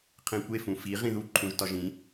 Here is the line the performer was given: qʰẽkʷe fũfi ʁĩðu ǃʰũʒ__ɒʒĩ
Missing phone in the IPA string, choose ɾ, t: t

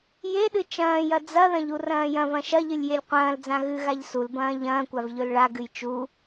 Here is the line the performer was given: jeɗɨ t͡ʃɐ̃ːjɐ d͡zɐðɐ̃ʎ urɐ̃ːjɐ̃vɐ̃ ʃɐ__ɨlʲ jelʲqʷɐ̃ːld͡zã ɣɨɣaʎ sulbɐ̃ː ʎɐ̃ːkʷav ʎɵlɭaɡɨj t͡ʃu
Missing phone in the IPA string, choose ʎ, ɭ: ʎ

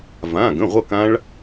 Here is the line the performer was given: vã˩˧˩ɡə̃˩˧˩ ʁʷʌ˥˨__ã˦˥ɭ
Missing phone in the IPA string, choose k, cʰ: k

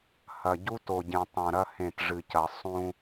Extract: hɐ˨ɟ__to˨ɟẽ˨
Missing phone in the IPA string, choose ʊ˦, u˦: u˦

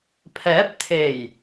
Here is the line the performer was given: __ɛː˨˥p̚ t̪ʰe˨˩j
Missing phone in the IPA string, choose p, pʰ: pʰ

